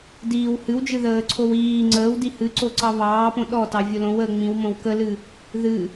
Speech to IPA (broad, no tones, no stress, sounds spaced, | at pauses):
d iː w h ɨ w d͡ʒ ɨ ð əː ǀʰ o w iː ŋ͡ǀ əː w d i h ɨ ǀ o ǀ ɑ β ɑː p õ ɗ ɔ t ɑ vʲ o l õ w əː ŋ͡m ĩ w m õ w k ə l ɨ | ð ɨ